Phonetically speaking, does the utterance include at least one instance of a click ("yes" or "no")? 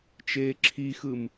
yes